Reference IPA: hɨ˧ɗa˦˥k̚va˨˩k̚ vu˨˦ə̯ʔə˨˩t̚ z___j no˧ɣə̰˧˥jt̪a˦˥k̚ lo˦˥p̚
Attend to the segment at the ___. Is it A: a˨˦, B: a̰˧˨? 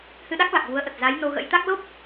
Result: A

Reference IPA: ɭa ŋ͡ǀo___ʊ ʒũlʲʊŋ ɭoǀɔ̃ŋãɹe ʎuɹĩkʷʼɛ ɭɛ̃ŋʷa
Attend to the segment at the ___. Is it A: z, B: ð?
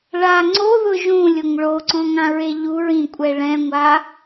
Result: B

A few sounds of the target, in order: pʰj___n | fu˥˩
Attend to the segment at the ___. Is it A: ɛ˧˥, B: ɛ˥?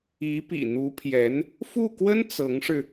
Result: A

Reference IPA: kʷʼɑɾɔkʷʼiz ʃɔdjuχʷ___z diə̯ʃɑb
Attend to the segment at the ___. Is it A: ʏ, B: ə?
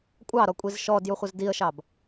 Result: B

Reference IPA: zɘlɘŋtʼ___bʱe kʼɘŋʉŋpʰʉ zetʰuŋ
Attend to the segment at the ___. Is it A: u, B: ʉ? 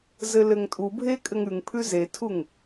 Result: A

